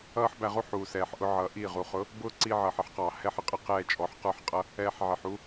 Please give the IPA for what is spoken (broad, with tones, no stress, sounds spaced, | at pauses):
ʌː˦ ħ b æ˧ ʁ u˦ ħ uː˨ s ɛː˨ ħ ʔ ʊ˧ ʕ ʌː˨ ʔ i˦˨ ʁ u˨ χ ʊ˨˦ | b ʊː˦ ǀ i˧ ʕ ʌː˨ ħ ɪ˦ ħ q ɑː˨ h ɛ˦ ħ ə˨ qʼ ə˦ q ɛː˧ t͡ʃʼ ɔ˨˦ ħ q ə˞˦ ħ qʼ ʌ˦ | ɛː˧ ħ ʕ ɪ˨ ħ u˦